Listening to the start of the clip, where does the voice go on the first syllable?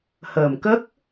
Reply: low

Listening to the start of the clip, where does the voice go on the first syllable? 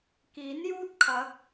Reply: rising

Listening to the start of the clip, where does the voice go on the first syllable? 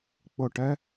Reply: falling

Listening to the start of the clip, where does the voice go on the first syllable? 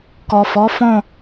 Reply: low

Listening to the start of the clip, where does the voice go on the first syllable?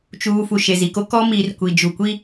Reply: low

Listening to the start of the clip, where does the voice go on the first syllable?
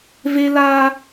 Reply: high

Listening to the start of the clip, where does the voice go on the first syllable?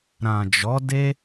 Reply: low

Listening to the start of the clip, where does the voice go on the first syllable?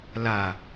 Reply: low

